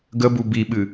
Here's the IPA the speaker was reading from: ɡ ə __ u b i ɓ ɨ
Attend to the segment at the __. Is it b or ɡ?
b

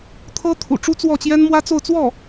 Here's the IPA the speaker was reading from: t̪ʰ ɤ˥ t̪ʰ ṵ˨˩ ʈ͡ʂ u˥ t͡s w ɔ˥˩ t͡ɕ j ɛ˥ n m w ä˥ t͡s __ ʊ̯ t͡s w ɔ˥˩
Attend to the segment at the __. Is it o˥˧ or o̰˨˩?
o˥˧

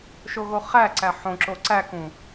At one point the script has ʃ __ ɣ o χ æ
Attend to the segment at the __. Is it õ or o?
o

